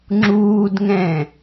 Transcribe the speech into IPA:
ŋ͡ǁ uː d ŋ ɛ̃

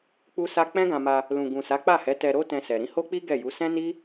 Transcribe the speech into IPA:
k͡p u˦ s a˦ k͡p ɛ̃˦ ɡ ã˧ m a˧ | l ũ˨ ɡ ũ˨ s a˨˦ k͡p a˦˨ h ɛ˨˦ t ɛ˧ ɾ o˦ t ɛ̃˧ s ɛ˨ ɾ ĩ˧ h o˦ k͡p i˦ ɡ ɛ˦˨ j u˨˦ s ɛ̃˦ n i˦

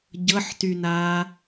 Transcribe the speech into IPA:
ɟ ɤ ħ t y n aː

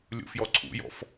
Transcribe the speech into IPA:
lʲ ṵ f j ɔ ǀʰ ṵ j ɔ̰ f

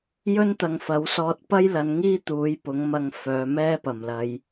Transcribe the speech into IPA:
j ɵ˥ n t̪ ɐ˨ ŋ f ɐ˨˥ w s ɔː˧ t̚ p ɐ˥ j l ɐ˨˧ n ŋ iː˥ t̪ uː˨˥ j p ʊ˨˥ ŋ m ɐ˧ ŋ f œː˨˧ m ɛː˥ p ɐ˨˩ m l ɐ˨˧ j

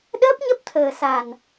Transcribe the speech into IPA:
ɗ əː˦˥ p̚ ɲ ə˦˥ p̚ t̪ʰ əː˨˩ s a˨˩ n

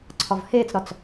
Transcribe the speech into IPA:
ǀʰ ɒ v h eː t͡s ɾ ɒ t͡s

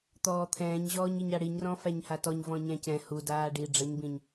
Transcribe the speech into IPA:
t̪ ɔː t̪ʰ ɛ̃ː ɲ ʑ ɔː ɲ i ɲ a ɽ i ɲ r ɔ̃ f æ ɲ h a t ɔ ɲ v ɔ̃ ɲ æ̃ c ɛ̃ h u d aː ɖ i ɖ͡ʐ ə ɲ b ĩ ɲ

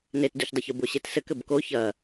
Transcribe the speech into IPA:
n e t d u ç dˤ ɘ ç u b o ɕ e t s ɘ k ɘ b k o ç ɐ

